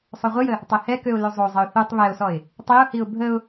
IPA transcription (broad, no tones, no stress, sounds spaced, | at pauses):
sˤ o ʁʷ ə j ə | tˤ e h ɛ k ø ʊ̯ l ø zˤ o zˤ ə ʊ̯ θ u tˤ β ɛ ʊ̯ s ɔ ɪ̯ | tˤ i ʊ̯ h i ʊ̯ bʱ ə ʊ̯